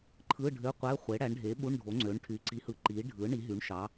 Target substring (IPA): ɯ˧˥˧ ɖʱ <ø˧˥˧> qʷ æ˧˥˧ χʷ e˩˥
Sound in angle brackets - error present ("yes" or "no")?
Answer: no